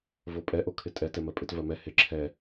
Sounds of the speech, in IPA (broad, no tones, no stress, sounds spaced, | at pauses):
v o pʼ ɛ ʔ o kʰ ɪ tʼ ɛ t ɛ m ɜ pʼ ɪ t v ɜ m ɛ h ɪ ǁʰ ɛ